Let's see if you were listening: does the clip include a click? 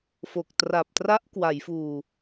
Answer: no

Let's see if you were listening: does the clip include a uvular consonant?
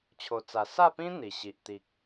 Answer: no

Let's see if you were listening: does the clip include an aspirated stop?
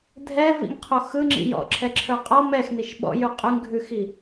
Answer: yes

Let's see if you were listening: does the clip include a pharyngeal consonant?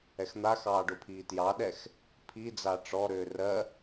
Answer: no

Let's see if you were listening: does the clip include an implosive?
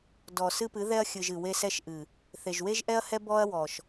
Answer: no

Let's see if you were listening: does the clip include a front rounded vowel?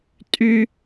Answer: yes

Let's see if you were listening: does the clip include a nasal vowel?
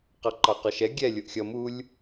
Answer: no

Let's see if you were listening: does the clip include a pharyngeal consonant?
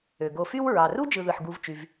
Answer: yes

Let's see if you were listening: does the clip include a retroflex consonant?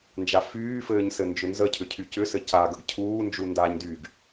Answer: no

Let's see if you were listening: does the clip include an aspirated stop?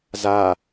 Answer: no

